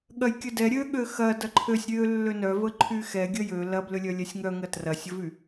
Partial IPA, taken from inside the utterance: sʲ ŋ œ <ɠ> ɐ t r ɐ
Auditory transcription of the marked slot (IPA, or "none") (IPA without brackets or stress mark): ŋ